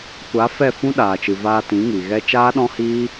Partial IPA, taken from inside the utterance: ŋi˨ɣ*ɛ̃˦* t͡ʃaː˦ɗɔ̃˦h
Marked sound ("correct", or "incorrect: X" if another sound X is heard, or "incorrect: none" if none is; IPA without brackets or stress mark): incorrect: ɛ˦